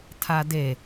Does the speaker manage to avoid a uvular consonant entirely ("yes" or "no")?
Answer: yes